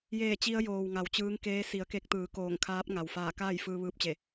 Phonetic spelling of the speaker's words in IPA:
j eː˧˩ t͡ɕ i˧ ə̯ j oː˩ w ŋ a˩˧ w t͡ɕ ɯː˧˥ ŋ k eː˧˥ s i˩˧ ə̯ k e˧ k̚ t̪ ɯː˩˧ k oː˧˩ ŋ kʰ aː˧˥ p̚ ŋ a˩ w f aː˧˩ k aː˥˨ j f ɯː˧ ʋ ɯː˧ p̚ t͡ɕ e˧˩

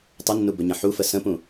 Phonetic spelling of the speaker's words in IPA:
tˤ ə nː u b ɵ ɲ ə̃ ħ u f ə s ə̃ p ũ

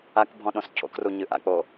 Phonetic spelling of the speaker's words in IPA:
a k bʱ ɔ̃ ɗ õ s cʰ o̰ k r u ɲ ɨ ʔ a̰ k͡p o

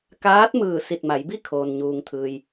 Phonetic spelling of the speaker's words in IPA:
k aː˧˥ t̚ m ɯː˧˩ s i˧˩ t̚ m a˩˧ j b i˥˨ kʰ oː˩ n ɲ uː˩ ŋ t̪ʰ ɯː˩ j

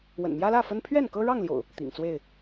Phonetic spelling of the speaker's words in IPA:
w ə̰˨˩ n m j ä˦ l ä˥˨ f ə˦ n pʰ ɥ ɛ˥˨ n k ɤ˦ ɻ ɑ˥˨ ŋ l j o̰˨˩ ʊ̯ | t̪ ḭ˨˩ ŋ t͡s w e˥˨ ɪ̯

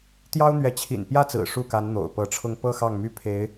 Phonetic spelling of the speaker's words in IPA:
t̪ j ɑ˥ ʊ̯ n̪ ɥ ɛ˧˥ t͡ɕʰ ḭ˨˩ n p j ä˥˩ t͡s ɹ̩˨˩ ʂ u˥˩ k a˧˥ n n̪ o̰˨˩ ʊ̯ p ɤ˧˥ ʈ͡ʂʰ ʊ˥˧ ŋ p ɤ˥˧ x ɑ˥˩ ŋ m y˥ pʰ e˧˥ ɪ̯

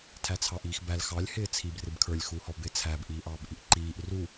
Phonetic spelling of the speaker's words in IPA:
tʰ æ t͡sʰ ɑ ʔ iː x b æ l x ɑ lʲ h ɪː t͡sʰ i b r ɪ b kʰ ə˞ lʲ x uː h ɔ b ɪ t͡sʰ æ b ʔ iː ʔ ɑː b ʔ i ʔ ǃ iː ʔ r u

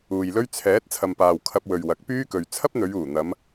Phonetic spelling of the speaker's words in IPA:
uː˨ j l ɵ˥ ɥ t͡sʰ ɛː˨˥ t̚ t͡sʰ ɐ˨ m p aː˨ w kʰ ɐ˧ p̚ w ɵ˨ ɥ w ɐ˨˥ k̚ p yː˥ k ɵ˨ ɥ t͡sʰ ɐ˥ p̚ n̪ ɵ˨˧ ɥ uː˨˩ n̪ ɐ˨˧ m

